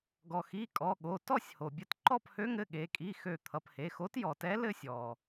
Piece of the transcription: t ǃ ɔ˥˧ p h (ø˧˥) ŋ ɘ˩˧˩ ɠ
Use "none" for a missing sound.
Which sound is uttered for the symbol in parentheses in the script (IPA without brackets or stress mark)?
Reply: ø˧˥